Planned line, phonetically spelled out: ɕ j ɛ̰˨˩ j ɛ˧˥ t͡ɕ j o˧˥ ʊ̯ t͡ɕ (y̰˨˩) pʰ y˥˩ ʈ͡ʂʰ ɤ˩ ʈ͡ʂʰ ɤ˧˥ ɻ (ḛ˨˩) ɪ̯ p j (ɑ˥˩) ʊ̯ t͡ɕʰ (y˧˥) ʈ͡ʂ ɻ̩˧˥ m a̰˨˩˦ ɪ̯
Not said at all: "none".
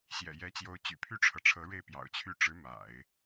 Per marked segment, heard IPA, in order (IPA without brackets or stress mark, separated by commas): y̰˨˩, e˥˩, ɑ̰˨˩, y˥˩